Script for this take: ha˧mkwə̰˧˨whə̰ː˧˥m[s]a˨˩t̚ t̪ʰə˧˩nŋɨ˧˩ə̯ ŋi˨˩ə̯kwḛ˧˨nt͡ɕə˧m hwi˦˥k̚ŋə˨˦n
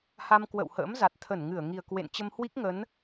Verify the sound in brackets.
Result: incorrect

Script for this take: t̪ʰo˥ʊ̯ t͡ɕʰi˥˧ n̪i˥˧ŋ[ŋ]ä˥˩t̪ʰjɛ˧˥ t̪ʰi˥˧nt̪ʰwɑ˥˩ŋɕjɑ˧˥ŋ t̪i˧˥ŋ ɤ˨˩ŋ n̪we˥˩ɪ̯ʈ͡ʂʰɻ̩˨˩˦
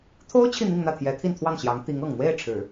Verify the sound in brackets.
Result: incorrect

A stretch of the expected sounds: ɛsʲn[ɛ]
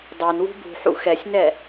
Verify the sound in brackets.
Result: correct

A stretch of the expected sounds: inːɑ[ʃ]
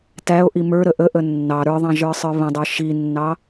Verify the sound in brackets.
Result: incorrect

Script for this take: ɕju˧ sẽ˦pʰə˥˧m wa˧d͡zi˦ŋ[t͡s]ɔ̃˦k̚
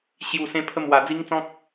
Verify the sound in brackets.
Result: correct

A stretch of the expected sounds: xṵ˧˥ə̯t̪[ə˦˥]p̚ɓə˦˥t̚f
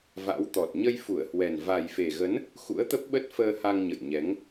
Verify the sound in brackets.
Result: correct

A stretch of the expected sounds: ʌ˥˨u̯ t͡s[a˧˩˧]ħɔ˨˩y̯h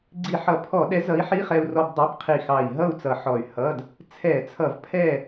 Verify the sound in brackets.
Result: incorrect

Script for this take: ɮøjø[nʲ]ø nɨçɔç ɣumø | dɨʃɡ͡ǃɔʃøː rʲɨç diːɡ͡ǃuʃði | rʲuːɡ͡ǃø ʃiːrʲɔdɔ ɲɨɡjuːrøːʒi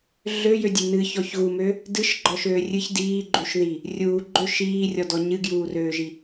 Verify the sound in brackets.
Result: incorrect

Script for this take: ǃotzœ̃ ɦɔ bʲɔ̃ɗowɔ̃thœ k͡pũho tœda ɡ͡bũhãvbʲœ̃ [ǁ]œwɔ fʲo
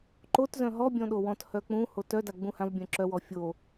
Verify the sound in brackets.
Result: correct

